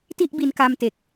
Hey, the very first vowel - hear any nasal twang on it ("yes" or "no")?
no